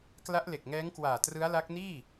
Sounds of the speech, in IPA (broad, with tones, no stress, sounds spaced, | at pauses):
k l a˦˥ ʔ l e˨˩ k̚ ŋ ɛː˦˥ ŋ k w aː˨˩ t r ɯ˦˥ a̯ l a˦˥ k̚ n iː˥˩